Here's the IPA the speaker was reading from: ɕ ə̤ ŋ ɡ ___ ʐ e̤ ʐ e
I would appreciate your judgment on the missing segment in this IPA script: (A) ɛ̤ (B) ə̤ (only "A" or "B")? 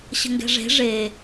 A